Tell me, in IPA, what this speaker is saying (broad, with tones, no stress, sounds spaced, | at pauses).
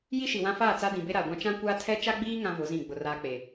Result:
j i˦ ʃ i˨ w ã˦ f aː˦˨ t͡s a˦ d ĩ˨ b e˦ ɾ a˨ ɡʷ ã˦ t͡ʃ ã˦ kʷ aː˦ tʰ ɛ˦ t͡ʃ a˦ ɡ͡b iː˦ ŋ ã˦ v ʊ˨˦ z ĩ˦˨ ɡ͡b ʊ˨ r aː˦ k͡p e˨